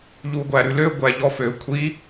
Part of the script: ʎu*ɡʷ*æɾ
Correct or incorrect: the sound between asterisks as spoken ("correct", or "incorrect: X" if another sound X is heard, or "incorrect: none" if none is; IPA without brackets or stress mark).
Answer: correct